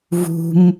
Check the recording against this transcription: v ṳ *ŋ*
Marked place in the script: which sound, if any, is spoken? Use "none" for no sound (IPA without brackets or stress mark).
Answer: m